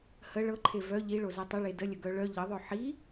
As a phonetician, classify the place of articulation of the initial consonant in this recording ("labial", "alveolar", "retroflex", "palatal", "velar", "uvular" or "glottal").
glottal